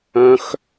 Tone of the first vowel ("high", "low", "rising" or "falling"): high